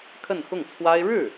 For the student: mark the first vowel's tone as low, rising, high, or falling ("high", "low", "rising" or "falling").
falling